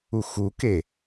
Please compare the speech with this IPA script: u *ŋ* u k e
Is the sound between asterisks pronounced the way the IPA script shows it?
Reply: no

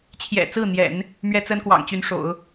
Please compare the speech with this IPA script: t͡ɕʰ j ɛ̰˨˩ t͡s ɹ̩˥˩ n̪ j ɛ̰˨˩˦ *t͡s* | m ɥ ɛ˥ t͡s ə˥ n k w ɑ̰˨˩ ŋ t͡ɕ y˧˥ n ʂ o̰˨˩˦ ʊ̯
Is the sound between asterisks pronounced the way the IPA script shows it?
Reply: no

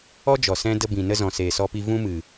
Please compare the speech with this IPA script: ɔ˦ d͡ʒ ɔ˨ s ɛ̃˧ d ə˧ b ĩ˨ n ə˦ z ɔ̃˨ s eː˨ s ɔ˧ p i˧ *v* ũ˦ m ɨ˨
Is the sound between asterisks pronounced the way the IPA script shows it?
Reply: yes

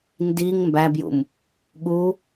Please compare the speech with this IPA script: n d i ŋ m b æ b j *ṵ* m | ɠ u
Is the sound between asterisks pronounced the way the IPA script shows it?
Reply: yes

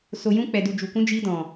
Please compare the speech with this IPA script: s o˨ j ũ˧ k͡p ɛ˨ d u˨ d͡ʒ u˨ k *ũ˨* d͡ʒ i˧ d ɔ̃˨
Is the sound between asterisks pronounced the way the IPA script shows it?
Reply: no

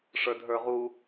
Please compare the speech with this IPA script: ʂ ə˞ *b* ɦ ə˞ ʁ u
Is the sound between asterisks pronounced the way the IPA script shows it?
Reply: no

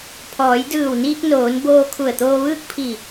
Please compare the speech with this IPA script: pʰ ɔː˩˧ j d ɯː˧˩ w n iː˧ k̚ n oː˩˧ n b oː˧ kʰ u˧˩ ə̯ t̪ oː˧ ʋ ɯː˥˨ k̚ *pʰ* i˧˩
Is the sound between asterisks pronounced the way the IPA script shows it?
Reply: yes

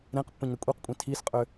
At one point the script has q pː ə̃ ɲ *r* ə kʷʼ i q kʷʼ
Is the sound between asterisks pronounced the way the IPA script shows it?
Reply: no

